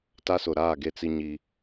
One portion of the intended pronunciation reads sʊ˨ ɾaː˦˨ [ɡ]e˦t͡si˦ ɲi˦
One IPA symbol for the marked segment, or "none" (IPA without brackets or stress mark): ɡ